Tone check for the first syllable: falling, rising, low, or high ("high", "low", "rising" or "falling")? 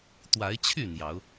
rising